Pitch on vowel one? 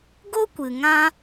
high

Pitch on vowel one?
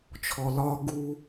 low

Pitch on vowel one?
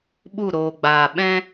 falling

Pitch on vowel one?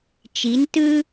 rising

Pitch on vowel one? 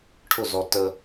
falling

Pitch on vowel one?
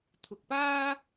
low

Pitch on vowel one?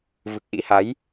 low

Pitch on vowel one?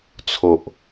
low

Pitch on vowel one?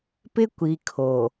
high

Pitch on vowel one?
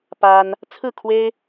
high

